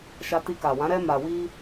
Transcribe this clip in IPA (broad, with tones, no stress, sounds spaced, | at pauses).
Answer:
ʃ a˧ t i˧ k a˨ w ã˨˦ ɾ ɛ˧ m a˨ w i˧